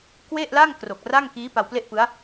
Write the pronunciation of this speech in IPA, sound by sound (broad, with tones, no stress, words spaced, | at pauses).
kwe˥˩ʔla˥˩ŋ kro˨˩k̚ra˥˩ŋ kiː˦˥ pa˧wple˥˩ʔpɯ˦˥a̯